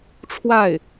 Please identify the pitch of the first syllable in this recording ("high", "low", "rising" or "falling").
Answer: falling